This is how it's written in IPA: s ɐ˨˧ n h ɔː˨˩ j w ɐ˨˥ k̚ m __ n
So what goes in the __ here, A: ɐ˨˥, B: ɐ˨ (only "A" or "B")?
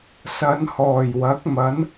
A